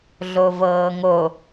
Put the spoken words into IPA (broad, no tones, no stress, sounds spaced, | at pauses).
ɮ o v ɤː ŋ o